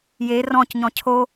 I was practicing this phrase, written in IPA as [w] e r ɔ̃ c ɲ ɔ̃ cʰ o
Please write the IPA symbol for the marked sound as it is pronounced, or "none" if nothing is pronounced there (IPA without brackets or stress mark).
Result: j